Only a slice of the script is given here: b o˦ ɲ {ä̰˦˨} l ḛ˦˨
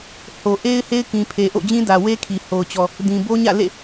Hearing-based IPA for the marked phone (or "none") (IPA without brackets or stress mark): ä̰˦˨